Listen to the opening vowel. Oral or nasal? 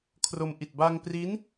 oral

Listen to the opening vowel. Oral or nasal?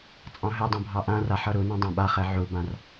nasal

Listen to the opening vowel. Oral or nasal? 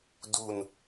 oral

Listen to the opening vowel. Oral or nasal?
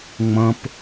nasal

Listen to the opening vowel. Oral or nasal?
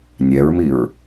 oral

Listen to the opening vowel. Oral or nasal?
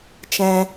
nasal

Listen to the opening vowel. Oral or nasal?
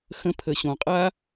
nasal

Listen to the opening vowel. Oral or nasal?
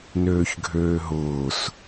oral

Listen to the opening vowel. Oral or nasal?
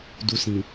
oral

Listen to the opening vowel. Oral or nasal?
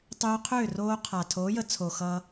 oral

